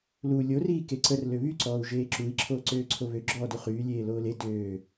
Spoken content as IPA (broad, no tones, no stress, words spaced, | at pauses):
lu lʲoriː keǀər løβyǀɔːu̯ ʒeːǁui̯ ǁʰoːǀøːǀʰoβø ɡ͡ǁɔːduχyː lʲeːloːle døː